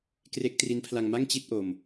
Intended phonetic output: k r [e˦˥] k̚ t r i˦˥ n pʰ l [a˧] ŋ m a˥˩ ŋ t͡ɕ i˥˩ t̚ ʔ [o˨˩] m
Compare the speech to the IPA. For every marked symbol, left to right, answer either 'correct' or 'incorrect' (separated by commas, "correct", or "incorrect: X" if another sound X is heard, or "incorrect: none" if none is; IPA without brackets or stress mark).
correct, correct, incorrect: o˧